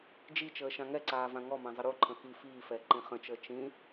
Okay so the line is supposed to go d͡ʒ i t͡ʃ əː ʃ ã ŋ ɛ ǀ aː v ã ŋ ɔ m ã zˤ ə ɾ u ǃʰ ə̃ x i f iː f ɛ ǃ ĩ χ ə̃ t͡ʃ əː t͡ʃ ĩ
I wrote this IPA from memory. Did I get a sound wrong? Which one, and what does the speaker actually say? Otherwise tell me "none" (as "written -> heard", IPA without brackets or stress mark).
none